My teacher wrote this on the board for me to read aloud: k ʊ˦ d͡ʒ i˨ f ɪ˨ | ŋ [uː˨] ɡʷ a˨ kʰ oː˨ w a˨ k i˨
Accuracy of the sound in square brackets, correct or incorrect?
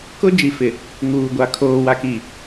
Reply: correct